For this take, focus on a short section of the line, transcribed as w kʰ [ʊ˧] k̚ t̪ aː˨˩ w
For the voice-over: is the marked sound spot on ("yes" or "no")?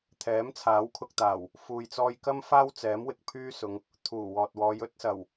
yes